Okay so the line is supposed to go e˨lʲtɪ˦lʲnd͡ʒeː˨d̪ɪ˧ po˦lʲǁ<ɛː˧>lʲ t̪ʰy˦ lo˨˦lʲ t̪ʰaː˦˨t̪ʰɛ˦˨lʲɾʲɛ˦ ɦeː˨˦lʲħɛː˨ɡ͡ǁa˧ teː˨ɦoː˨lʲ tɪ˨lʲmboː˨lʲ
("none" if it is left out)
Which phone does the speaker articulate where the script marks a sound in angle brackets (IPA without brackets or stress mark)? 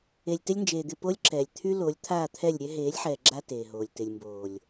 ɛː˨